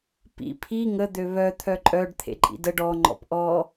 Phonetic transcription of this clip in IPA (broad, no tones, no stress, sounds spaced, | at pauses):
p ḭ pʰ i ŋ ə d̪ ø β œ t̪ʰ œ ǃʼ œ ɖ t̪ʰ ḛ ǃʼ ḭ d ə ɖ ɔ ŋ͡ǃ ɔ̰ p ʔ ɔ